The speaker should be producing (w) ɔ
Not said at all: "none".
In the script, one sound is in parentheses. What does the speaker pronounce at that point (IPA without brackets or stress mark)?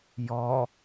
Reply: j